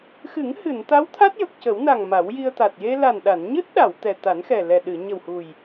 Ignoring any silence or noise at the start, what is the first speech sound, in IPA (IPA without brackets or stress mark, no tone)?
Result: x